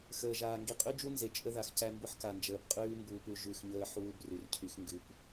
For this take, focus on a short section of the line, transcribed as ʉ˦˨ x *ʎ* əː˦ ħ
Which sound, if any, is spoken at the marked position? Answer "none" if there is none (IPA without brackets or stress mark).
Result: ɲ